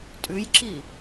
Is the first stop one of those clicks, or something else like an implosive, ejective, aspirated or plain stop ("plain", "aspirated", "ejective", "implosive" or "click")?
ejective